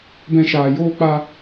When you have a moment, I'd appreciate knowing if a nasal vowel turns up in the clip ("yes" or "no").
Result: yes